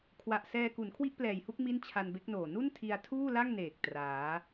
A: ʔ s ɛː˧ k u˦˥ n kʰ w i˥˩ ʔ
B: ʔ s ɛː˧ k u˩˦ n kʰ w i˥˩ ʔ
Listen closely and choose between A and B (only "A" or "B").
B